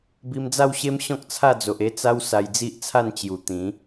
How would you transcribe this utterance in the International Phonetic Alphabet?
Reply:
b i˧ m d͡z a˥˧ w ɕ e˦ m ɕ ɔ̃˦ k̚ t͡sʰ a˥˧ d͡z o˨ ʔ e˧ t͡s a˧ w s a˧ j d͡z i˦ ʔ t͡sʰ a˥˧ n t͡ɕ j u˨˩ t̪ ĩ˨˦

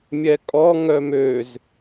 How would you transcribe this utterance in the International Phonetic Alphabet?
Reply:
mʲ ɛ kʼ ɔ ŋ œ m ø z

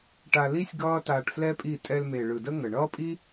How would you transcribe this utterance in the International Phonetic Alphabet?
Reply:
ʈ a˧ l i˦ sʲ ɡ ʌː˦ t aː˧ ʈ f l ɛ˦ pʼ i˦˨ tʼ ɛ˧ l m e˨ ɭ ɯ˨ d ə˦ ŋ ə˨ ɳ ʌː˦ pʼ i˦

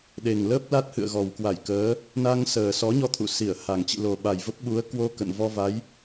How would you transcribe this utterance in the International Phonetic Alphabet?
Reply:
ɗ e˨˩ ŋ l əː˦˥ p̚ l a˦˥ t̚ h ɨ̰˧˨ ə̯ ɣ ɔ˨˩ w k w a˧˩ j k əː˨˦ | n a˧ ŋ s əː˨˩ s ɔ˨˦ ɲ ɔ˧ t̪ʰ ṵ˧˨ s i˧˩ ə̯ h a˨˩ ŋ t͡ɕ ḭ˧˨ l o˨˩ ɓ a˨˩ j v ə˦˥ p̚ ɓ u˨˦ ə̯ k w o˧ k ə̰˧˨ n v ɔ˧ v a˨˦ j

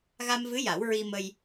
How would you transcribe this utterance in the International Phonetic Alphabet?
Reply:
ɣ a˧ m v ɨ˧˥ j a˨˩˦ w ɹ i˧ m ə˧ j

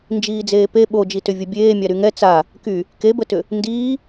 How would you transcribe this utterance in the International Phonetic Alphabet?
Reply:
n d͡ʒ iː d͡z eː p e ɓ o d͡ʒ i t ʏ vʲ ə bʲ eː mʲ a ɾ y ŋ ɛ t͡s a | k y | k e b ə t ʏ | n d iː

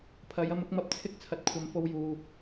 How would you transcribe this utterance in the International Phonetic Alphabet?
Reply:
pʰ ɐ˨˧ j ɐ˧ m ʊ˧ k̚ m ɐ˧ p̚ t͡sʰ ɪ˥ k̚ t͡sʰ ɐ˨˥ t̚ kʷʰ ɐ˨˧ m f o˧ w j uː˨

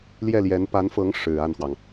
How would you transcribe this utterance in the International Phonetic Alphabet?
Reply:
l j ɛ˥˩ l j ɛ˧˥ n p a˧˥ n f ɤ˧˥ ŋ ʂ ɻ̩˨˩ a˥˩ n x w ɑ˩ ŋ

